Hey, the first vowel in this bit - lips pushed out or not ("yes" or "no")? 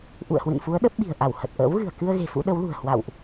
yes